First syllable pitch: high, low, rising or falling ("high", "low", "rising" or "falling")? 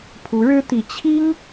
rising